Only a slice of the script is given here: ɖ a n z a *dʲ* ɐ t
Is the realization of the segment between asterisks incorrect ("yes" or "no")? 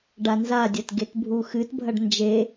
no